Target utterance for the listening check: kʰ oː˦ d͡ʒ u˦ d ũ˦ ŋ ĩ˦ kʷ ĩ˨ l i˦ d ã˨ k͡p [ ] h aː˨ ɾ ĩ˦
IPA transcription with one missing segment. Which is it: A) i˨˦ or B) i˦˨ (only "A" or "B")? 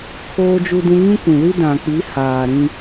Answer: A